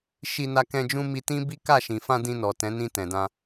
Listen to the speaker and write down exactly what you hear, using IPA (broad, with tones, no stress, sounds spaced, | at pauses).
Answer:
ʃ i˧ n a˧ k ɛ̃˧ d͡ʒ ũ˧ m i˧ t ĩ˦ b i˦ k a˦˨ ʃ ĩ˨ f ã˧ d ĩ˧ n ɔ˨ t ɛ̃˨˦ n ĩ˧ t ɛ̃˨ d ã˧